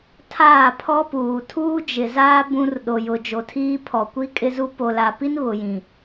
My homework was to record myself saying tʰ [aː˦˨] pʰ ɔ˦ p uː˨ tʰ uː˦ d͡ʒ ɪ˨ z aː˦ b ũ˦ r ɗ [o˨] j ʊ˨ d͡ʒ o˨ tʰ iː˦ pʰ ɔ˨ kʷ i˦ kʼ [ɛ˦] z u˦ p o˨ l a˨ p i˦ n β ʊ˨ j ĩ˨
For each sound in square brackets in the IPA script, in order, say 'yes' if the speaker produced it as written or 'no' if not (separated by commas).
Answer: yes, yes, no